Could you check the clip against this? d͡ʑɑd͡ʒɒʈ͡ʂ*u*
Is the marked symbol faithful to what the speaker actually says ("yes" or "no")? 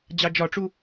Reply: yes